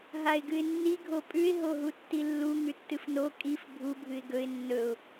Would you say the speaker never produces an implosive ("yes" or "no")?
yes